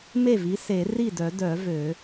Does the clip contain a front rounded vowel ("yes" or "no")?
yes